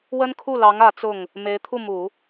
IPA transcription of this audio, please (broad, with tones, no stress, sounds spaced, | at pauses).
w ə˥ n kʰ u˥˩ l ɑ˧˥ ŋ ä˧˥ t͡s ʊ˥˩ ŋ | m e˧˥ ɪ̯ t̪ʰ u˥˩ m u˨˩˦